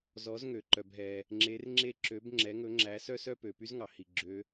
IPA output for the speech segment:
zɔ˨˦zŋø˩ ǃœ˩bɦɛ˩ | ŋ͡ǁe˨˦rŋ͡ǁe˦ǁø˨˦b ŋ͡ǁɛ˨˦ŋɵ˨˦ŋ͡ǁæ˨˦ sœ˦sœ˦pø˩py˦z ŋɑ˩hi˩ɡ͡ǁø˨˦

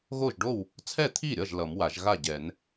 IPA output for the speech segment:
ɣo˥˩ʒɖo˥˩w | t͡sʰɛ˥˩t̪ʰi˥˩ɾʲʌ˥˩ʒ lʌ˨˩˦mwa˨˩˦ʒ ɣa˥˩ɟɛ˨˩˦n

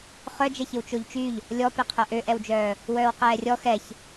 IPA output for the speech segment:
χœd͡ʒɛçɪw t͡ʃoʎt͡ʃyʎ | lʲɔpeqʰœ ʔøʔɛwd͡ʒœː | wœːwqɛːrʲɔ xɛç

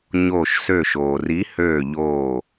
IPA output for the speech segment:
ɲoː˧˩ʃsø˧˩ʃoː˩ri˨˥ høː˧˩ʎoː˧˩

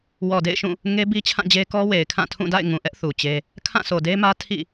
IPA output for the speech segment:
wɔ˨dḛ˦˨ɪ̯ʃũ˦˨ | ŋe˦bi˦t͡ɕʰã˦˨d͡ʑe˦ kɔ˦ we˨ɪ̯kʰã˦˨tʰũ˦˨ da̰˦˨ɪ̯ŋũ˨ʔɛ˦ʔ θu˨t͡ɕe˦ | kʰã˦˨so˨de˦mä˦ tʰḭ˦˨

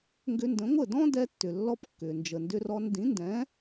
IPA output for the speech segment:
ŋɡʏ˧ndə̃˩˥ŋʷə˥˩ dɔ̃˥dɛ˧tːʏ˩lːɔ˧p kːʏː˩nd͡ʒə˩ ndʏ˧rɔ˧n dĩ˩˥ndɛ̃˩˥

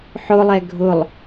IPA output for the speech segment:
ħʊlˠɛ ɡʱʊlˠ

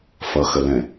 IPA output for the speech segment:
fʌxəlɛ̃

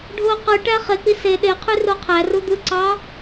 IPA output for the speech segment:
ɖʱo qɯ ʈæχek͡pi se ɗeqʰy roqʰæru d̪ɯǀɑ

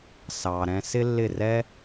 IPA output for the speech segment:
sɑː˨ɾɛ̃˧ sɪ˦lːɪ˦˨rɛ˦

